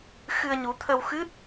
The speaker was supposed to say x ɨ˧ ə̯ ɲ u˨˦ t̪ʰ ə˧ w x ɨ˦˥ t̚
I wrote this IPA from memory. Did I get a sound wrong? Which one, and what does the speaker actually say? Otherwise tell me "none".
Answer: none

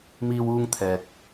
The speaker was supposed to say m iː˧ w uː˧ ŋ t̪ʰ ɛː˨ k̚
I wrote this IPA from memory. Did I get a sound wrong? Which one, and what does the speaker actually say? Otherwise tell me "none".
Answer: none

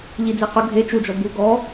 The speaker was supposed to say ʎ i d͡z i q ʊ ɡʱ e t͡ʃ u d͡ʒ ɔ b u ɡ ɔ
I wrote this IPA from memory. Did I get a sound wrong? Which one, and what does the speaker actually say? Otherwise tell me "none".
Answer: none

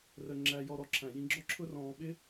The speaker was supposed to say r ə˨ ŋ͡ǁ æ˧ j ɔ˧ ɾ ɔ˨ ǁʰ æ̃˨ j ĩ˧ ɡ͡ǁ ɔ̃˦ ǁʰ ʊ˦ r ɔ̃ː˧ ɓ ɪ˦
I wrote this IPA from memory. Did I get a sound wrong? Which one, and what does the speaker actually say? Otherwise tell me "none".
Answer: ɔ̃˦ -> ɔ˦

